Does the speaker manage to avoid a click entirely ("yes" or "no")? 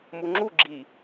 no